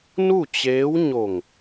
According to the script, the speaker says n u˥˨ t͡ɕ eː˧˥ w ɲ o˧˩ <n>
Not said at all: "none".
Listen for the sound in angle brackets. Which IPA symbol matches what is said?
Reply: ŋ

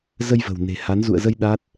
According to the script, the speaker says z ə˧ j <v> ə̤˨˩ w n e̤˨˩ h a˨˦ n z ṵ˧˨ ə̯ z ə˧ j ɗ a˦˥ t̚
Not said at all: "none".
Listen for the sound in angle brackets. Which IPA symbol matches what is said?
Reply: v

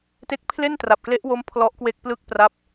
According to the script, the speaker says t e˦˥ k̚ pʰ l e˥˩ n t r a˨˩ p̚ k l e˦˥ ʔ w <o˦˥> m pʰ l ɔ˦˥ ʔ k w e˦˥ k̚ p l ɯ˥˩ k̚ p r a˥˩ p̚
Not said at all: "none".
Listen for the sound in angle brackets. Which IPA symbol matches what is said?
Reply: o˦˥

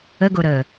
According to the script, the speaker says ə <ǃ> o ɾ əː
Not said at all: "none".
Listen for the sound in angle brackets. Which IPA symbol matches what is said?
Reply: ɡ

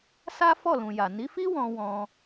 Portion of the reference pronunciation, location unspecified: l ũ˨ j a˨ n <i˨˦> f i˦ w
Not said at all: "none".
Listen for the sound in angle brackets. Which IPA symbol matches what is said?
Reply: i˨˦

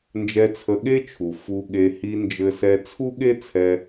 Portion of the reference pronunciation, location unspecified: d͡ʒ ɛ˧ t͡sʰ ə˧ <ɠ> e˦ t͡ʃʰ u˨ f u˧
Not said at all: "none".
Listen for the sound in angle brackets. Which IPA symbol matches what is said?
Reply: ɠ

